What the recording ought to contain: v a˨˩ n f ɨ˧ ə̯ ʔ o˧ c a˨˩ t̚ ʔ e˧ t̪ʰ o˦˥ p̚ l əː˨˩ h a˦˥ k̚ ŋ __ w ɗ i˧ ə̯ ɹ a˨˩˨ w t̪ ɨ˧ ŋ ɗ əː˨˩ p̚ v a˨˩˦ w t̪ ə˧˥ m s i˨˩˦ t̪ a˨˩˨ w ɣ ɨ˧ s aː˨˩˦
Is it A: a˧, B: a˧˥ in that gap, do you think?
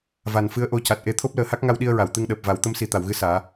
A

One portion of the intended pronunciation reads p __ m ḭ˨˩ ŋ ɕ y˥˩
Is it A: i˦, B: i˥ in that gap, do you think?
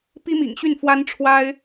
B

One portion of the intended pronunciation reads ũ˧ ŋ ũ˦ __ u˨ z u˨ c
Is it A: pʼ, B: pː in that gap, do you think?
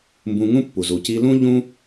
B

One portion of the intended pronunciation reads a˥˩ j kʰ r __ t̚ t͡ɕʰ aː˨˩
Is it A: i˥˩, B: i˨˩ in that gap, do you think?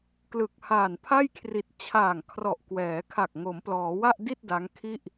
B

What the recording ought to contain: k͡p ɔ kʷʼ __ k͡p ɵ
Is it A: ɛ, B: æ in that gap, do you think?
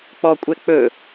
A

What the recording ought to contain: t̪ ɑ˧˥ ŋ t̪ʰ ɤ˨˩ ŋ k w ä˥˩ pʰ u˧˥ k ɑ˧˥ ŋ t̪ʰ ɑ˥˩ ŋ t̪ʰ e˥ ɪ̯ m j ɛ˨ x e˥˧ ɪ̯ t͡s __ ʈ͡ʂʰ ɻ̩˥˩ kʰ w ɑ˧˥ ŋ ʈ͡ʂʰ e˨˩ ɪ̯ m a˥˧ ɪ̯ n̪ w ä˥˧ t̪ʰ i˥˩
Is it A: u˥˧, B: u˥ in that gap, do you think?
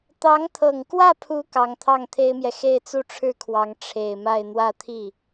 A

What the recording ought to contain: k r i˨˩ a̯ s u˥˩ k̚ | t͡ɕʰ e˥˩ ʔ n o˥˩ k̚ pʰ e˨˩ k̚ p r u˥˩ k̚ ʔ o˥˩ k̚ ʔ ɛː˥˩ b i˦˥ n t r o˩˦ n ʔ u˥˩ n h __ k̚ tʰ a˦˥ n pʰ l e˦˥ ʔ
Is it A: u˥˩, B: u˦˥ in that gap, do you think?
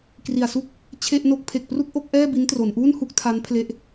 A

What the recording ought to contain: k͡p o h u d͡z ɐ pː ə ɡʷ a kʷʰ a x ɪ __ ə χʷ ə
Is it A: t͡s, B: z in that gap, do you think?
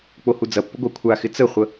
A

